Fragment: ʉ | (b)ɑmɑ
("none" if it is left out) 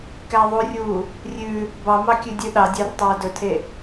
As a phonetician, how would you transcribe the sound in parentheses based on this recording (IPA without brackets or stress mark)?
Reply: b